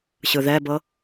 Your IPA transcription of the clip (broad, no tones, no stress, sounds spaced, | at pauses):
ɕ ɯ ð ɛ b ɤ